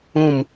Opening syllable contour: falling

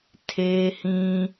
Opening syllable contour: high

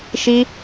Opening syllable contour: high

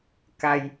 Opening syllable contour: low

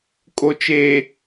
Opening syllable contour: low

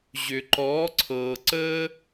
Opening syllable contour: low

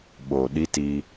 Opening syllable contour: low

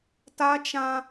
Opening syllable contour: high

